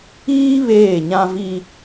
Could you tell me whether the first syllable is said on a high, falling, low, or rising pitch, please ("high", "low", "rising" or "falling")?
high